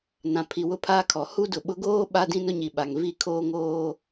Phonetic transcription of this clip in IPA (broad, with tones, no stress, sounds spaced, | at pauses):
n ã˨ pʰ i˨ w ʊ˦ pʰ aː˦ kʰ ɔ˨ h u˦ d ʊ˨ ɓ ʊ˦ ɡ oː˦ ɓ a˦ d ĩ˦ n ʊ˦ ɲ i˨ ɓ a˨ ŋ v i˦˨ kʰ oː˦ ŋ oː˦